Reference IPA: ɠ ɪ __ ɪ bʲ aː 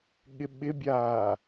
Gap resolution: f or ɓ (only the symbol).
ɓ